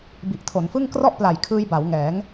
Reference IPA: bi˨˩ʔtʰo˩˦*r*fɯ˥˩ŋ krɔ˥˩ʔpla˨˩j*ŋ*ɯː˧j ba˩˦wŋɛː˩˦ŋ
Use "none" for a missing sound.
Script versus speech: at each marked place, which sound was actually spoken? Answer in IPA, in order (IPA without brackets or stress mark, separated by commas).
n, kʰ